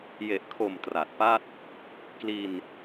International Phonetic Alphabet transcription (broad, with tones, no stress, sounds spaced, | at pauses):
j e˨˩ ʔ kʰ o˨˩ m t r a˨˩ t̚ p a˥˩ t̚ | k l i˧ n